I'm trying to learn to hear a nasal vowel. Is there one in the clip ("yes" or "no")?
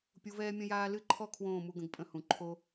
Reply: yes